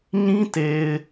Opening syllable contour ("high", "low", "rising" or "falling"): high